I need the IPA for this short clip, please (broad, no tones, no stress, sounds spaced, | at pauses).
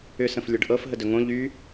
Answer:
ʏ s ə̃ f lʲ ɤ ɖ ʔ ɤ f ɦ ə d ɵ ŋ õ ʎ y